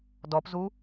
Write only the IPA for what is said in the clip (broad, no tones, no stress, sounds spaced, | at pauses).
d ɔ p z u